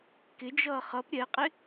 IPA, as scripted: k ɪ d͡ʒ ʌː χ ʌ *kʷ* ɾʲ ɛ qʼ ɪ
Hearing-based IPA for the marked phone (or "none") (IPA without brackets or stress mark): p